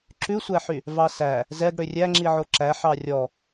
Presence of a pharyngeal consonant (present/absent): present